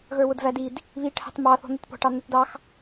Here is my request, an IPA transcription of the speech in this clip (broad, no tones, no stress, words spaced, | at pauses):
ɣə˞wʊdvædid | βi ʈʰɑ̤tmɑ θɔ̤n̪ɪtpɔ̤ ʈɑn̪ɛtdɑx